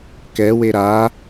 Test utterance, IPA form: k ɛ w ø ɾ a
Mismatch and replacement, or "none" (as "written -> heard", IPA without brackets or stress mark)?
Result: ø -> e